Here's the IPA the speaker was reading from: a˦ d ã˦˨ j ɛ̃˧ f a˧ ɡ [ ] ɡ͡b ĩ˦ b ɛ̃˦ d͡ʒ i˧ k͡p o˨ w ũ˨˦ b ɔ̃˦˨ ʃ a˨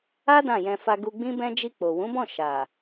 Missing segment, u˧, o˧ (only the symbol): u˧